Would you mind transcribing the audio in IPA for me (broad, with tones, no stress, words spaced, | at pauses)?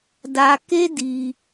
da˧ke˦di˧